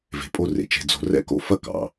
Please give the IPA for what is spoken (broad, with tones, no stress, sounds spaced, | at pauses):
v e̤˩ pʼ o˦ r ḛ˩ t͡ʃ e̤˨ d͡z o̤˨ r ɛ̰˦ k o̰˦ f ɐ˥ k ɑ̰˩